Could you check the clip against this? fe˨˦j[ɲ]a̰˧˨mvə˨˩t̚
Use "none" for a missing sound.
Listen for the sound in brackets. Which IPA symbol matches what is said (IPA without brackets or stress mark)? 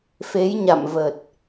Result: ɲ